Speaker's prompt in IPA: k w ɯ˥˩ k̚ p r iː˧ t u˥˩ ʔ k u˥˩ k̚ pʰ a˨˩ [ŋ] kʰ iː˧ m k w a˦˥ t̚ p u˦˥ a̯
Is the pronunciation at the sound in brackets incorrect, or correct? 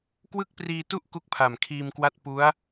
incorrect